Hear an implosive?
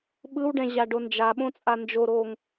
yes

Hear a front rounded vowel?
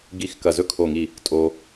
no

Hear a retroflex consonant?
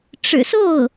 yes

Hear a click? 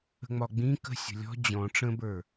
no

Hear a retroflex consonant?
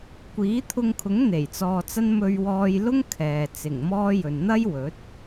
no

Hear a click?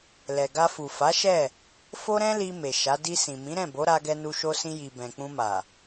no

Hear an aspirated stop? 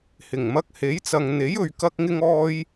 no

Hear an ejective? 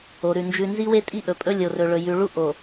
yes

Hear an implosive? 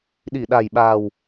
yes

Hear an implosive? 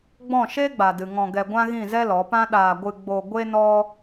yes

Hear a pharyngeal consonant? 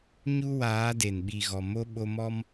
no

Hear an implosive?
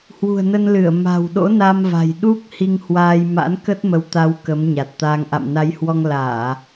yes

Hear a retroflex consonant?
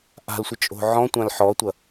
no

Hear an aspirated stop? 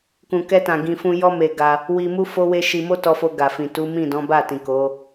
no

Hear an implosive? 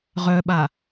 yes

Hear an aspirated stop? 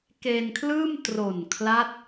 yes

